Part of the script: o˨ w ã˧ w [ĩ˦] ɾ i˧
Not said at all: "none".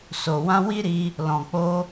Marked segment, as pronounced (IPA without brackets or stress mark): i˦